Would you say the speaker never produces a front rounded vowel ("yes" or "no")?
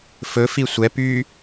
no